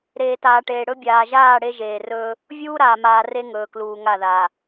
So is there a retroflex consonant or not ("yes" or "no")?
yes